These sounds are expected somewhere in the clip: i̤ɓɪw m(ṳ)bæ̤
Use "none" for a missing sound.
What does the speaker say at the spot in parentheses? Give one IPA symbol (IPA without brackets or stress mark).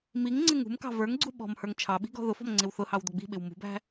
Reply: ṳ